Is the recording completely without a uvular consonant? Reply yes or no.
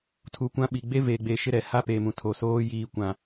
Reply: yes